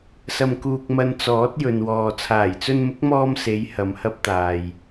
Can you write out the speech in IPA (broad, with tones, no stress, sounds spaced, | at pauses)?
s ɐ˧ m k uː˧ k̚ m ɐ˧ n t͡s ɔː˨˥ t̚ j ɵ˨ n w ɔː˨ t͡sʰ aː˨˩ j t͡s ɵ˧ n m ʊ˨˥ k̚ m ɔː˧ m s e˨˧ j h ɐ˨ m h ɐ˧ p̚ t̪ aː˨ j